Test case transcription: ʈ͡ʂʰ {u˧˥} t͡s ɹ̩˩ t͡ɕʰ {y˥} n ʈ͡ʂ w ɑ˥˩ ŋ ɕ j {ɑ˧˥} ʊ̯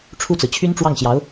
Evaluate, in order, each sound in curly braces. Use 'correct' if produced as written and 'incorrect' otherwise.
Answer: incorrect, correct, correct

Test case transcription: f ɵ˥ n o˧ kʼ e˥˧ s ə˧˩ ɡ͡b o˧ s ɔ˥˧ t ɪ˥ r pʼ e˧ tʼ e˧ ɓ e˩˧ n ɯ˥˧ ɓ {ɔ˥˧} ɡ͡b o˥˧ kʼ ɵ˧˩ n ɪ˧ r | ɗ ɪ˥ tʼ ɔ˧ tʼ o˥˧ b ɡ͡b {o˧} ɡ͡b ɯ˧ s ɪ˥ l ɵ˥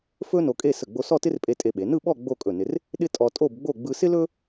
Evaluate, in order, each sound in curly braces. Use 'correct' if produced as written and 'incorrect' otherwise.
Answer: correct, incorrect

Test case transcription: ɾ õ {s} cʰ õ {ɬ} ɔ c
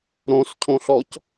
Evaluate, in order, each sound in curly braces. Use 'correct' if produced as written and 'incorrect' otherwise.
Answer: correct, correct

